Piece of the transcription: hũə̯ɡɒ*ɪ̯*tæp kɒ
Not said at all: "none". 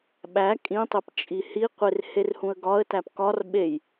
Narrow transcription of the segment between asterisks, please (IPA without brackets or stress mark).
ə̯